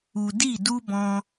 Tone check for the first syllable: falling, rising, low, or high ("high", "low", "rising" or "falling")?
low